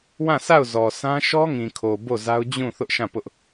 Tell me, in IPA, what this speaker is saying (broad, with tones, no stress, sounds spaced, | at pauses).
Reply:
w ã˦˨ sʰ a˦˨ ʊ̯ z ɔ˨ sʰ ã˦ ʃ ɔ˦ ŋ ĩ˨ kʰ o˨ b o˦˨ z a˦ ʊ̯ d͡ʑ ũ˦˨ θ ʊ˦ ʔ ʃ ã˦˨ p ʊ˦ ʔ